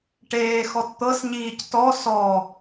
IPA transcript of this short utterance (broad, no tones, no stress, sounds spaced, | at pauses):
ʈ eː x ɔ t t̪ ɤ s ɲ iː c t ɔ s ɔ